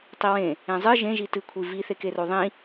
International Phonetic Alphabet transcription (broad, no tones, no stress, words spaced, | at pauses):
tˤiwẽ | ẽzˤɨ ʒẽʒi tɨkʷʰi viθekero ðˤĩ